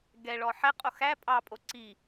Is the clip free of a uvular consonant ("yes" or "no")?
no